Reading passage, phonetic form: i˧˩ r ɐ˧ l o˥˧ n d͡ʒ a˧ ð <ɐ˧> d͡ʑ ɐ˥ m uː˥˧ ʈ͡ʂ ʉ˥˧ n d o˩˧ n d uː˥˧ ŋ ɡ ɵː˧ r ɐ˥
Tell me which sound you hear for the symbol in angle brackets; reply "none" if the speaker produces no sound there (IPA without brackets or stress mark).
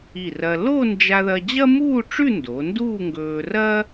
ɐ˧